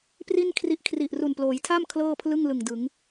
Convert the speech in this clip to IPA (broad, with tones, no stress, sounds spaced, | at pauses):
p r i˥˩ n kʰ r i˦˥ ʔ kʰ r i˨˩ ʔ r u˨˩ n p l oː˩˦ j tʰ a˥˩ m kʰ l ɤː˥˩ pʰ l ɯ˥˩ ŋ l ɯ˨˩ ŋ d ɯ˩˦ ŋ